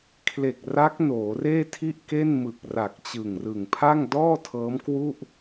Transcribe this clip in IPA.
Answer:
kʰ l e˨˩ k̚ r a˦˥ k̚ n oː˩˦ r eː˥˩ tʰ i˥˩ ʔ k e˥˩ n m ɯ˨˩ k̚ r a˨˩ k̚ t͡ɕ ɯ˨˩ ŋ r ɯ˨˩ ŋ pʰ a˥˩ ŋ d ɔː˥˩ tʰ ɤː˦˥ m k w u˥˩ ʔ

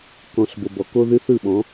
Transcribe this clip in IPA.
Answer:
k ɔ̃˨ ɬ b o˨ b ɔ˨ k o˦ ð ɨ˦ θ ɯ˦˨ ɓ ɔ̃˨˦

